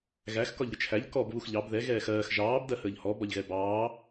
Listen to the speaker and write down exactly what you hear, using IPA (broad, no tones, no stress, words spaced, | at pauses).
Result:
ɣæx kɒʎɾʲət͡ʃʰæʎ kɔb βuxʎɑb ðɛ ɣɛːxɜːx ʒɑːb dɜhəːʎhɔ bɒʎɣɛbɑː